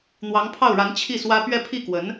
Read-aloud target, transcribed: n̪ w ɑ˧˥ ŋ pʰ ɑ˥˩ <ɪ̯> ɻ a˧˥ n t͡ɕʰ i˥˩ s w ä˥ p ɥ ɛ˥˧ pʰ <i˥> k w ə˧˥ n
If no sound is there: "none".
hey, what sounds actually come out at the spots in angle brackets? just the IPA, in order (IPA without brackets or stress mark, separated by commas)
ʊ̯, i˥˩